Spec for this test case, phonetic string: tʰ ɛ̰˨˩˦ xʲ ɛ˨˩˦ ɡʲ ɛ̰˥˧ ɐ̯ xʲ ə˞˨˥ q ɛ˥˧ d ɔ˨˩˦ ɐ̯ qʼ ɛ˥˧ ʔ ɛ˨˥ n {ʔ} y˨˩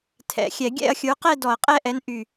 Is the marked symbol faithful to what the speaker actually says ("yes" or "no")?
yes